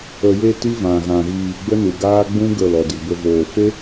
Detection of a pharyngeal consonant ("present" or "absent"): absent